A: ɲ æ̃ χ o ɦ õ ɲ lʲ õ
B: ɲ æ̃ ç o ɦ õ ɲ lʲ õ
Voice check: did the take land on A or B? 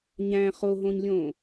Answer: A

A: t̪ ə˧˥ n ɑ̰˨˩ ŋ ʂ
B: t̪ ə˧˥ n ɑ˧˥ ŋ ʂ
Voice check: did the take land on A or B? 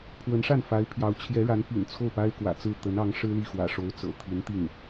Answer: B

